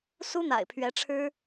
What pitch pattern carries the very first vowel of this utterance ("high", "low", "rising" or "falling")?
high